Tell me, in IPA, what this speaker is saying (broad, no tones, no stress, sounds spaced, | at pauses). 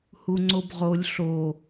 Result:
h u ŋ͡ǀ o b ʁ o lʲ ɬ o